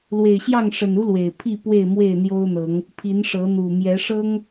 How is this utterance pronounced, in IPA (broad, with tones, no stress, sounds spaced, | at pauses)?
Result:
l w e˨˩ ɪ̯ ɕ j ɑ˥˨ ŋ ʂ ə˨˩ n u˦ l w e˨˩ ɪ̯ pʰ i˥˨ p w e˥˨ ɪ̯ m w e˥˨ ɪ̯ n̪ j o˦ ʊ̯ n̪ ɤ˨˦ ŋ | pʰ i˨˦ n ʂ ɤ˨˦ n̪ u˨˩ m j ɛ˨˦ ʂ ɤ˦ ŋ